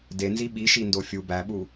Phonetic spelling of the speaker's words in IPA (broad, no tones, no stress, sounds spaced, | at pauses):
d e n z i ɓ i ʃ i n d o fʲ u b æ ɓ u